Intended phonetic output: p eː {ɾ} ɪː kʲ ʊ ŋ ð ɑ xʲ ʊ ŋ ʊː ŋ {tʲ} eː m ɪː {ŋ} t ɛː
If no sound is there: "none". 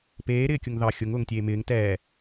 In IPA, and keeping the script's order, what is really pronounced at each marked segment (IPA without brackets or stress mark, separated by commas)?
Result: ɾ, tʲ, ŋ